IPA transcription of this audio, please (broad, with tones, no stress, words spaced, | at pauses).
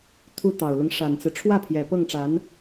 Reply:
t̪ʰu˧˥t̪ɑ˨˩ʊ̯lʊ˦ŋ ʂa˨˩nt͡sɹ̩˦ ʈ͡ʂʰwä˥˩pʰjɛ˨˩ pɤ˥˩ŋʈ͡ʂa˧˥n